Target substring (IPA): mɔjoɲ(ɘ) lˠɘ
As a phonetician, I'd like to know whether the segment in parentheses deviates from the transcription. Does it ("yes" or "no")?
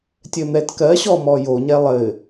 yes